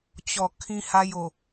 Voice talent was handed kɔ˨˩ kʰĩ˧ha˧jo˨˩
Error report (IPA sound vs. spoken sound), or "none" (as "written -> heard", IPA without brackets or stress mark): k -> t͡ɕ